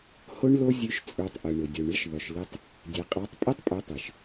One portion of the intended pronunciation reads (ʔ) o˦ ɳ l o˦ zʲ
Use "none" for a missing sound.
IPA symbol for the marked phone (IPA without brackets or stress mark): h